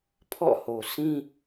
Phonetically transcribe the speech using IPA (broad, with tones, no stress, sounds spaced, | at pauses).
pʰ ɔ̰˦˨ h o˨ s ĩ˦